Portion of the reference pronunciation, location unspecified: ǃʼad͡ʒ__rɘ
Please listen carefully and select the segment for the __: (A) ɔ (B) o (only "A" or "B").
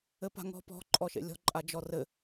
A